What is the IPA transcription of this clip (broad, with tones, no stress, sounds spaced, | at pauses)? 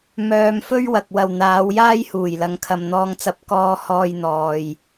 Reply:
m œː˧ m f ɵ˥ ɥ w ɐ˨ k̚ w ɐ˨ w n̪ aː˨˧ w j aː˥ j h uː˨˩ j l ɐ˨˧ ŋ kʰ ɐ˧ m n̪ ɔː˥ ŋ t͡s ɐ˥ p̚ k ɔː˥ h ɔː˥ j n̪ ɔː˧ j